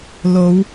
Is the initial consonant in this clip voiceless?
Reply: no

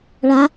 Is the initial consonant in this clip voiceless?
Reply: no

